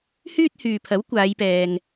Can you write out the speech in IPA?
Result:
hyː˥t̚hyː˨pʰɐ˨˥w kʷaː˨˧jpɛː˨ŋ

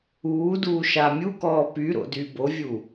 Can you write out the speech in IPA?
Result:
uːduː ʃamʲukɔː pyɾo̰ dybovʲu

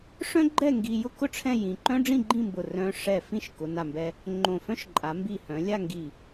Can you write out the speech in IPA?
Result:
ʂœ̃˥ɡ͡ǃɛ˥˧ ŋɡi˧ jʊ˥kʊ˥ ʈ͡ʂʰɛ̃˥˧jĩ˧ ǃœ̃˥ɖ͡ʐĩ˥˧ɡ͡ǃĩ˥˧mbʊ˧˩ rœ̃˧ ʂɛ˧˩ fĩ˥˧ʃkʊ˩˧na˧˩mbɛ˧ | ŋ͡ǃõ˧˩fœ̃˥ʃ ǃʼa˩˧mbi˧˩hœ̃˩˧ lʲa˥˧ŋɡi˧˩

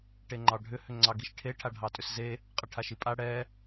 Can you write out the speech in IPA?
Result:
ʈeŋ͡ǃɑɖʱʏ hʏŋ͡ǀɑɡiʃʈʰe ʈʰaɖʱɑtʼʏsze | qʼəʈʰaʃipʼa ɽɛ

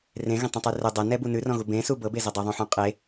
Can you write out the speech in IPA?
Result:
rẽɣə̃tˤə̃tˤʉ rə dˤʌnɛbu nʉrɔ̃ɣu bẽsu bɤbezʌ dˤəðˤũħũ qʼe

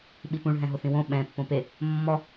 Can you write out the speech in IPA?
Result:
ɓipũɭ ɦɛ̃ɦʊθĩwõ ɓɛ̃ pːõpe | mːɔ

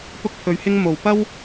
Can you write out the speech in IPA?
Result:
pʊ˧k̚pʰɵ˨˧ɥhɪ˧ŋ mo˧w pɐ˥w

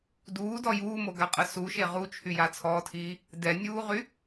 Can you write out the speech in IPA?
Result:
duːdɔ juːmoɡaqʼə suʃe ʁut͡ʃʰyja t͡sʰɔːtʰiː | dɛnʲuːʁy

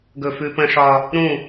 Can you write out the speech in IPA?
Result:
ɡɵ˦˨fʉ˦ pə̃˦ʂɒ˦ | ɾũ˦˨

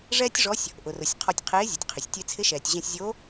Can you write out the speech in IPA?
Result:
ʐɛː˥tʲʐɔ˧˥sʲ | ʔʊ˩rʊ˩sʲ qʰɔ˧tʲqʰeː˧˥zʲʊ˩tʲqʰɪ˩sʲ tʲe˧t͡sʰɪ˧˥ʃɛː˩tʲ ʑɛ̃˧sʲzʲo˧˥

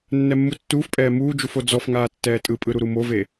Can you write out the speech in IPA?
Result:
nːɛmːutːuːfpʼɛː muːd͡ʒuf od͡zɔfŋaː tːɛːtʼɯpʼɯ ɾuɾumove

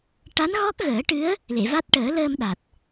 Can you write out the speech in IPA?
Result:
ʈa˧˥nɣɔ˦˥k̚ ɣəː˨˩˦ʈɨ˧˥ə̯ | le˨˩˨va˦˥t̚ ʈəː˨˩˦ ləː˧mɗa˨˩t̚

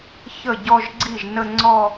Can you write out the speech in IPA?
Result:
çə˥˩ɟɔ˥˧ʒ ɡ͡ǀi˥˩ʒnə˥˧ ŋ͡ǀɔ˥˧

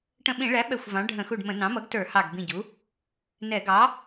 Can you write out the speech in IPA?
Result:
ʈə̃˧˩ɓĩ˧˩˧ɭæ˩˥ ɓɛ˧˩xʷvɑ̃˩˥ ɖʱə̃˧˩˧xu˧˩ɖmə̃˧˩˧ nɑ̃˩˥mʌ˩˥ɡtə˞˧˩˧ hɑ˧˩ɡ bĩ˧˩ɟu˩˥ | nɛ˧˩˧ ɡɑ˩˥

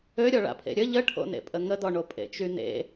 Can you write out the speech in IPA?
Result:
øɾʲɔɭa̰pʰḛ ɾʲə ʎəʈʰo̰nḛpʼə ŋədɔɳo pʼḛt͡ʃynḛ

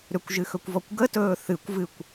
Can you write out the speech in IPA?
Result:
ɾʏkʷʒɨxɵkʷvɔkʷ ɡətɵː θɨkʷvɨkʷ

